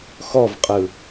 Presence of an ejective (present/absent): present